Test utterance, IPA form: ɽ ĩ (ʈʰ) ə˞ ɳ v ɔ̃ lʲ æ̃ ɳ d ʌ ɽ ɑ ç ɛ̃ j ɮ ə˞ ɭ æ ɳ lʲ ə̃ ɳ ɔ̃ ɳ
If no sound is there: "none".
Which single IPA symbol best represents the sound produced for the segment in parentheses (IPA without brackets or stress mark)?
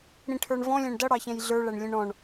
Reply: ʈʰ